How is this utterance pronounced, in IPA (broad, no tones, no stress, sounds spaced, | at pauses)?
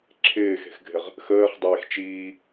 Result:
ǁʰ ɪː x e̤ x ɡʱ ɪ ʁ | x əː χ dˤ eː x t͡ʃ iː